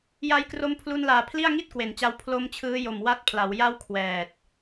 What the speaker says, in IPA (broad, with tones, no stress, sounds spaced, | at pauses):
j a˦˥ j k r o˦˥ m pʰ l u˧ n l aː˨˩ pʰ l i˥˩ a̯ ŋ i˥˩ t̚ k w e˩˦ n t͡ɕ a˧ w pʰ l o˦˥ m t͡ɕʰ ɯː˦˥ j o˨˩ m w a˦˥ t̚ pʰ l a˩˦ w j a˥˩ w kʰ w ɛː˨˩ t̚